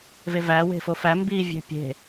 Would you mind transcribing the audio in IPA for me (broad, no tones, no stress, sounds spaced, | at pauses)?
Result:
v e v æ w e̤ f o f æ m b i vʲ e̤ pʲ e̤